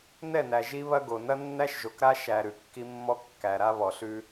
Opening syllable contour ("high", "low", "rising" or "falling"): falling